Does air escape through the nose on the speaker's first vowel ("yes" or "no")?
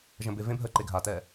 yes